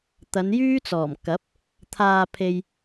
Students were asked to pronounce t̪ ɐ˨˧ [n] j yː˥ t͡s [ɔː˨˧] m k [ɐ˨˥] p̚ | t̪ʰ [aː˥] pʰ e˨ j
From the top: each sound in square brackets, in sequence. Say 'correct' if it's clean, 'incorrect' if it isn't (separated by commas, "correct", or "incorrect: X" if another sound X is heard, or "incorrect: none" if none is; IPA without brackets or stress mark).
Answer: correct, incorrect: ɔː˨˩, correct, incorrect: aː˧